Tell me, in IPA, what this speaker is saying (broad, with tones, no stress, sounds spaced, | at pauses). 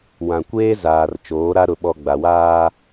w ã˨ kʷ eː˦ z aː˨ r t͡ʃ oː˨˦ ɾ a˦ ɾ ʊ˨ ɓ ɔ˨ ɡ͡b a˨ w aː˦